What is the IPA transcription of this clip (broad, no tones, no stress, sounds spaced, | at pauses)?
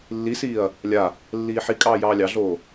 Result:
lː i s iː ɐ̯ | lʲ a | lː iː ħ i kʼ ɑː j ɑː lʲ ɑ ɮ oː